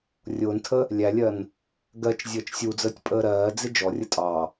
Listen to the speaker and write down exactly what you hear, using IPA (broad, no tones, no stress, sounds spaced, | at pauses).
rʲ ʊː n tʰ ə | lʲ æ lʲ ɜ n | ɡ ɜ t͡ʃ zʲ əː t͡ʃ sʲ u d͡z əː tʲ pʼ əː ɾ ɜː d͡z ɪ d͡ʒ ɔ rʲ ə tʼ ɑ